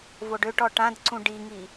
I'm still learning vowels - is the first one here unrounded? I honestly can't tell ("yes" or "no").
no